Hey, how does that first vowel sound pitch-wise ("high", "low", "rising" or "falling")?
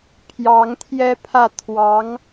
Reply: rising